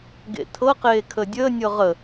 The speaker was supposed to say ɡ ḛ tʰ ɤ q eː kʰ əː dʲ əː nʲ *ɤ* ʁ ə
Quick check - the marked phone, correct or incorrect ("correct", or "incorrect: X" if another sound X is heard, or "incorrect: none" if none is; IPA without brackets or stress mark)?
correct